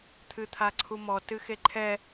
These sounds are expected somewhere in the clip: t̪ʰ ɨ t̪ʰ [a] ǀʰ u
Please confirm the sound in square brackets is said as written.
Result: yes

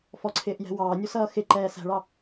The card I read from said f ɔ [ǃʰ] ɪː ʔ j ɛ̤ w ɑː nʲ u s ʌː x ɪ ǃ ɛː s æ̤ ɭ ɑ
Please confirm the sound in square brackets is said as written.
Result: no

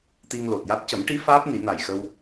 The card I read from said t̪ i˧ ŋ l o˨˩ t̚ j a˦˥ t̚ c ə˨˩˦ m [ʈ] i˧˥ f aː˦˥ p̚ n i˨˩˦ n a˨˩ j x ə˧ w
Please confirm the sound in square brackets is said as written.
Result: yes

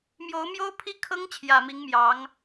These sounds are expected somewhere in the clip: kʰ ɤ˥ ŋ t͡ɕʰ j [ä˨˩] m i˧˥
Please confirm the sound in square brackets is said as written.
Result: yes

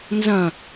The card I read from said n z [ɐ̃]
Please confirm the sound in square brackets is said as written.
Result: yes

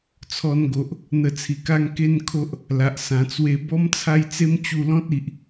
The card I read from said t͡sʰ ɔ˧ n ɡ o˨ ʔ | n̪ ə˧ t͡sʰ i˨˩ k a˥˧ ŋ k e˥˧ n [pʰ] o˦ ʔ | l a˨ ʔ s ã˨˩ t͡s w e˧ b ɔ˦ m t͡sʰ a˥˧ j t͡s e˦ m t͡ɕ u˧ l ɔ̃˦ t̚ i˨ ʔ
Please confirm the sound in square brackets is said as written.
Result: no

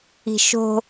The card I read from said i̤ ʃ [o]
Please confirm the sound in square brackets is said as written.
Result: no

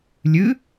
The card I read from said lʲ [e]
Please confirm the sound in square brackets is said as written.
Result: no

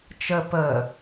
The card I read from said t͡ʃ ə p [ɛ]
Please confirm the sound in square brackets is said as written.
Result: no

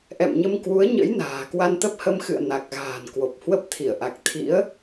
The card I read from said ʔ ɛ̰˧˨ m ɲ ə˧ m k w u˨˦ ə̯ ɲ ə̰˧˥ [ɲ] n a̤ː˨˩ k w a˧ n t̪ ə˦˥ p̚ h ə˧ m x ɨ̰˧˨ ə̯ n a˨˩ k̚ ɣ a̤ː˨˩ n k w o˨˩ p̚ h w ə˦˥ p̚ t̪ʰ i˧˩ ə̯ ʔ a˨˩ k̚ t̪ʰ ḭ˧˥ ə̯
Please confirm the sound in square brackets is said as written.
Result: no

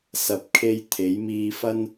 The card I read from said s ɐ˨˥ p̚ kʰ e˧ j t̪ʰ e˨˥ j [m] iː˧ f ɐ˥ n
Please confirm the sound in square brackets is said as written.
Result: yes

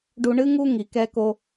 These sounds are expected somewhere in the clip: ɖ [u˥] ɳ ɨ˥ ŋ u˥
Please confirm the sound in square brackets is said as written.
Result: no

